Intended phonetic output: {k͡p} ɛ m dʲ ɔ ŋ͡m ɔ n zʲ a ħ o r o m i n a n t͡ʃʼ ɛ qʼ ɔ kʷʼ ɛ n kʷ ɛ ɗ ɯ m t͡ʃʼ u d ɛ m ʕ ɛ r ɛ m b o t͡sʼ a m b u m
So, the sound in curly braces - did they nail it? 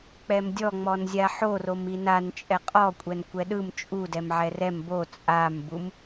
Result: yes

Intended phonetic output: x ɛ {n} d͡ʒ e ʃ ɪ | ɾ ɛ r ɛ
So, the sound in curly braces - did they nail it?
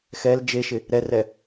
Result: no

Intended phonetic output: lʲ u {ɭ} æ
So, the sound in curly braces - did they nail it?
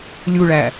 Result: yes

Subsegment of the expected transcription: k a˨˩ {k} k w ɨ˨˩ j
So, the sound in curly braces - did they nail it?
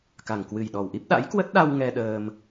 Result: no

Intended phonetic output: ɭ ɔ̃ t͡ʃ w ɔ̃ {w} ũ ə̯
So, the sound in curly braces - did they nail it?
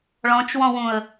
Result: yes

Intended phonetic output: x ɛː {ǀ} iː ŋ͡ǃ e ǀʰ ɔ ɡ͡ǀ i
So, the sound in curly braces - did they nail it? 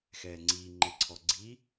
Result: no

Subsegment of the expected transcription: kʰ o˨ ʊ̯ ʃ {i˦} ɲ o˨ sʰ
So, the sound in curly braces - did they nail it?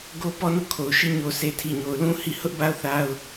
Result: no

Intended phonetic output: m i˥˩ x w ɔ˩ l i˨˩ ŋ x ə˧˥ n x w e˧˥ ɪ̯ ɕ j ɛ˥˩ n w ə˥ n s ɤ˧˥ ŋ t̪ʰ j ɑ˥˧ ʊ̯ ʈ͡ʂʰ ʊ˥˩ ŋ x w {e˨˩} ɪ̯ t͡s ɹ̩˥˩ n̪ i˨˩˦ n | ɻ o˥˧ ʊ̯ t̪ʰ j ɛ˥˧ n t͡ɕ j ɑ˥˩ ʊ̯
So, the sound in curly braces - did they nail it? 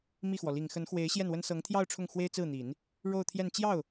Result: no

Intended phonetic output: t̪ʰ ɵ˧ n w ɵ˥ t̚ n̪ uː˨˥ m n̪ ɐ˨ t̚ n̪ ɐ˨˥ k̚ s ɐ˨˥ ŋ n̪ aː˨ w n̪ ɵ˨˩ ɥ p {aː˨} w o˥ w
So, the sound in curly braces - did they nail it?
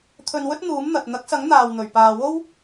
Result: yes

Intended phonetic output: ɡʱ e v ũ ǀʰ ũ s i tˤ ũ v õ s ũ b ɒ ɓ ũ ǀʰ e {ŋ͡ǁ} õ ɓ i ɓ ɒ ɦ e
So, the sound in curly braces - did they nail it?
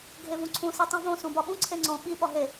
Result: no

